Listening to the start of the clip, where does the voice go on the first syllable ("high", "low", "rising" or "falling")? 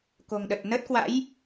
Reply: low